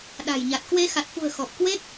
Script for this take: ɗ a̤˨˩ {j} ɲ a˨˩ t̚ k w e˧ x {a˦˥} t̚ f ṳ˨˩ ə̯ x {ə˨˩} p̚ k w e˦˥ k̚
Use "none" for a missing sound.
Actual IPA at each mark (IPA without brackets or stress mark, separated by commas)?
j, a˨˩, ɔ˨˩